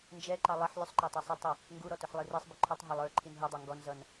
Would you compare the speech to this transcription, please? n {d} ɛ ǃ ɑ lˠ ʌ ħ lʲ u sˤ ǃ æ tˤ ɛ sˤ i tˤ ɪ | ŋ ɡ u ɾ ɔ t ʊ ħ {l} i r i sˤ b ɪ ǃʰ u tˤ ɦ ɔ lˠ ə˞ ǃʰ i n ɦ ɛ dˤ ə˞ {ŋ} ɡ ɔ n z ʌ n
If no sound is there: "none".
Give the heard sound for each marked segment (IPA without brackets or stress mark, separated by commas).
d͡ʒ, lˠ, ŋ